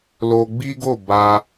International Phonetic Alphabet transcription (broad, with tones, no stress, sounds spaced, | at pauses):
l o˧ ɡ͡b i˦ ɡ o˦˨ b a˧